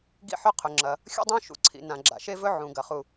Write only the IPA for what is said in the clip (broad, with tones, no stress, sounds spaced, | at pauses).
ɡ ḭ˥ ħ ɵ˥ qʰ ɵ˩ ŋ͡ǁ ɐ˩ | xʲ ṵ˥ dˤ õ˥ ʃ ṵ˩ ǀʰ ḭ˩ n ã˩ ɡ͡ǁ a̰˩ ʃ e˥ v ɵ˥ ʕ ũ˩ ɡ ɐ˩ χ u˩